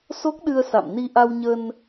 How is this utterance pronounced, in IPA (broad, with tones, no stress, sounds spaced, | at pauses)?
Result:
s o˦˥ k̚ ɗ ɨ˧ ə̯ s a̰˧˨ m n i˧ ʔ a˧ w ɲ ə˧ n